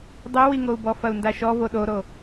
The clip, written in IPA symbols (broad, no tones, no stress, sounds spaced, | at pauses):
dˤ e w i ŋ o u̯ b ɔ f ɐ u̯ n d a ʃ ɔ v o ɗ o ɾ o